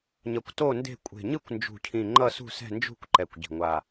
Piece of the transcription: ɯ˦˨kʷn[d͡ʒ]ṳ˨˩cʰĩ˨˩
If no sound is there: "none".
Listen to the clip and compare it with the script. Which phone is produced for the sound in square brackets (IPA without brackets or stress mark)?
d͡ʒ